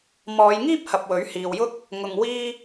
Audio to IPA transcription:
m ɔː˨˧ j ŋ iː˥ p̚ h ɐ˨ p̚ w ɵ˨˥ ɥ h iː˨ w j ʊ˥ k̚ | ŋ ʊ˨ ŋ w iː˧

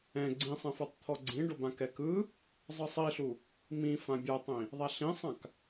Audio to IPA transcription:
ɛ̃ ɡ͡ǀ ĩ sˤ ɛ̃ f ɤ tˤ t̪ʰ ɔ ɡ͡ǀ ĩ ɖ o b ã k ɛ k ɯ | zˤ ɯ sˤ i ɬ u | m ĩ f ã bʲ a tˤ ĩ | ðˤ a ɬ ĩ sˤ ã k

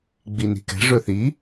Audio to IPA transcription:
ɡ͡b i n i̤ k ɛ̤ ʐ ɵ θ i

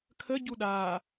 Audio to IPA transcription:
kʰ ə ɟ u ɗ aː

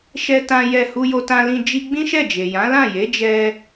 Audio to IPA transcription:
ʃ ɛ˦ t ã˦ j ɛ˦˨ h u˧ j o˧ t ã˧ l ĩ˧ d͡ʒ i˦ ɡ͡b ĩ˦ ʃ ɛ˦˨ d͡ʒ e˨ j ã˨˦ l ã˦˨ j e˨˦ d͡ʒ ɛ˧

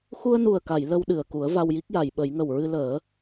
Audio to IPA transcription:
x u˧ ə̯ n u˨˩ ə̯ k a˨˩˨ j l ə˧ w ɗ ɨ˨˩ ə̯ k u˨˩˦ ə̯ v a˧ w j i˦˥ k̚ j a˨˩˨ j ɓ ə˨˩˦ j ŋ ə˨˩ w ɹ ɨ˧ l əː˨˩˦

